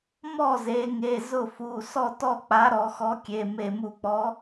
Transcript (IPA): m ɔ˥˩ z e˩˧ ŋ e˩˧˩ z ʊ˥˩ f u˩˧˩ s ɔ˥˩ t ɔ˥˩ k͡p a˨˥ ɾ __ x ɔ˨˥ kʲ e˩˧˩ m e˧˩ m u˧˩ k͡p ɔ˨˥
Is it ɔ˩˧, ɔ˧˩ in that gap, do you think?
ɔ˩˧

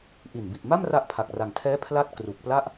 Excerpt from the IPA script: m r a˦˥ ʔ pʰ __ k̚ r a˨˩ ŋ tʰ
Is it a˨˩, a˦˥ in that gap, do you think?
a˨˩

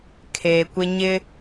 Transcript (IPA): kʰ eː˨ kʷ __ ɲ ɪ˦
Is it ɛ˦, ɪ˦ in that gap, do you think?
ɪ˦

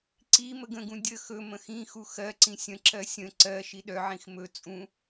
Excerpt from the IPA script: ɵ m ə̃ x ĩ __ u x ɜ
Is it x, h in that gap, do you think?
x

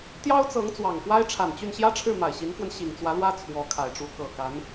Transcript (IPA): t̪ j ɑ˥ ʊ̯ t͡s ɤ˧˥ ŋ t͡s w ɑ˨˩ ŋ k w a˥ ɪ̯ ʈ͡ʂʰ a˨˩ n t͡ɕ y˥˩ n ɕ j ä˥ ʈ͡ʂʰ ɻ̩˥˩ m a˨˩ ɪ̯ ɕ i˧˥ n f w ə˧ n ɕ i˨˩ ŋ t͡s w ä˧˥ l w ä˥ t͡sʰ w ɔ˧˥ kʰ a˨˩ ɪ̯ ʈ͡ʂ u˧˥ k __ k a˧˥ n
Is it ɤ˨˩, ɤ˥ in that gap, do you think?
ɤ˨˩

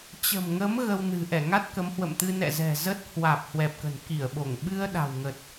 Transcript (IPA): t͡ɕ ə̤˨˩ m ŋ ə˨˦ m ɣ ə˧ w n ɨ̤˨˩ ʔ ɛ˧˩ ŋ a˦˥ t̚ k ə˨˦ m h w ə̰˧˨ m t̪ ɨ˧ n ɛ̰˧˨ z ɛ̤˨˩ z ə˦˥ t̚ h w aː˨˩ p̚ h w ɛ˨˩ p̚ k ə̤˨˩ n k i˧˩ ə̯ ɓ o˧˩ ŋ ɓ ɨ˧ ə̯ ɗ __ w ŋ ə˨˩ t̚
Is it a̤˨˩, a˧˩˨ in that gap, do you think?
a̤˨˩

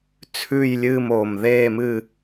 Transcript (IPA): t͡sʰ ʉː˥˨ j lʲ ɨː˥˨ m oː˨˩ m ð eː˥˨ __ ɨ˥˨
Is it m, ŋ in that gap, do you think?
m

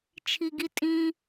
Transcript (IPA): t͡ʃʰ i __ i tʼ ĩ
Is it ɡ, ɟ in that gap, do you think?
ɡ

